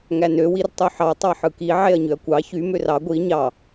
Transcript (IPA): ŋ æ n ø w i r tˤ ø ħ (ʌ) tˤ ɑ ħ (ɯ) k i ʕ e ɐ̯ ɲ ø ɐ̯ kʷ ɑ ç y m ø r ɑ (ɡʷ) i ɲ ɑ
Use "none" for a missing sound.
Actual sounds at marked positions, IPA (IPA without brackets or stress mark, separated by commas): ɑ, ɯ, ɡʷ